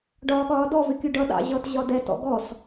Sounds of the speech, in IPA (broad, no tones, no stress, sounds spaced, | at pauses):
ɖ ɒː ɠ ɒː d ɔ v ɪ kʲ u ɖ ʌ ɗ ɑ̰ ʑ ʌ t ʑ ɒ d ɛ t ɔ̰ ɡ ɔ s